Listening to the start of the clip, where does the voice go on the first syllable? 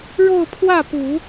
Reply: falling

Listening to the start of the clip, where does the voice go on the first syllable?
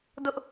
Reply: high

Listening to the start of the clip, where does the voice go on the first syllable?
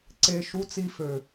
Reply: high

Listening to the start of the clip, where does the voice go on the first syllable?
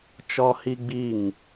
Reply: high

